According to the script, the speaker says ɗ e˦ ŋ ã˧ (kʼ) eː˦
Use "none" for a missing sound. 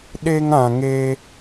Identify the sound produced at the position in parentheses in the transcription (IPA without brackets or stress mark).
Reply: ŋ